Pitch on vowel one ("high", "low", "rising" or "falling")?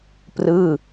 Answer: falling